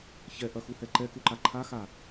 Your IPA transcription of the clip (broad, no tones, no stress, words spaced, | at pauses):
çɛʔɐxuhɛ ǃɛkuǃa ǃʰaxa